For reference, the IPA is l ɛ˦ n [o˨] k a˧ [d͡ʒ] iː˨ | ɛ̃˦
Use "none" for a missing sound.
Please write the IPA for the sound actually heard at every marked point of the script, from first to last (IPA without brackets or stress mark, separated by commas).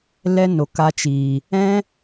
o˨, t͡ʃ